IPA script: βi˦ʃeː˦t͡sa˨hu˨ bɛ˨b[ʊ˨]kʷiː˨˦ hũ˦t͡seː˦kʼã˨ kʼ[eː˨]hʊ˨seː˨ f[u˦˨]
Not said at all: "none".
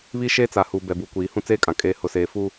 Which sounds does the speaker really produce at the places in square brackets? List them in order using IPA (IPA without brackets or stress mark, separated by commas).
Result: u˨, eː˨, u˦